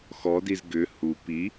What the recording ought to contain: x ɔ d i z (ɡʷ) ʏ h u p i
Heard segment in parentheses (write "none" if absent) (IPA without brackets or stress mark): ɡ